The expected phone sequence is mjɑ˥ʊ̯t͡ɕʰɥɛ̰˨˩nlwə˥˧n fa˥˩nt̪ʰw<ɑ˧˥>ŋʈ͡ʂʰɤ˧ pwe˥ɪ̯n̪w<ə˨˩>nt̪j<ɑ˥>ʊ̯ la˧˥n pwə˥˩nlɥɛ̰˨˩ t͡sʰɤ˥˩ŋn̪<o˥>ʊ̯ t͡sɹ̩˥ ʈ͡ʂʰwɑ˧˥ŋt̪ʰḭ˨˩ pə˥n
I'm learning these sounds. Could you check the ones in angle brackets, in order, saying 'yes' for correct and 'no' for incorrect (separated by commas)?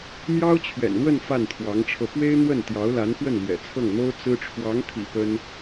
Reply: yes, no, no, yes